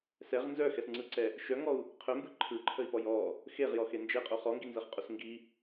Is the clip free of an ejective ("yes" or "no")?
no